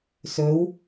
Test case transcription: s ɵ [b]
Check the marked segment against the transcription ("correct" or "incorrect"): incorrect